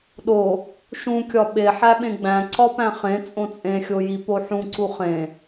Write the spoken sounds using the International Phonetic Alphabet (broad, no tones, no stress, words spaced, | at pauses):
ɗo | ʃũkʲɒ ɓe ħæɓẽɡ͡bæ̃ ǀɒpæ̃χẽ t͡sʼõt͡sʼẽxʲoji poħũǀu χẽ